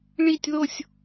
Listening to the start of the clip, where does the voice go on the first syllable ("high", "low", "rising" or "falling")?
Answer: falling